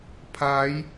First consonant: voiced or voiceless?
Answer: voiceless